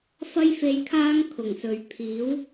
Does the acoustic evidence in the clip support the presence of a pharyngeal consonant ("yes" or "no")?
no